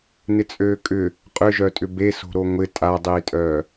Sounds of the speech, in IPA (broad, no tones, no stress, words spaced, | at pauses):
nɪt͡sʼøːkʼʏ | qʼʏʒœtʼʏ be so̤ɾoŋʷɪ tʼadˤiːtʼœː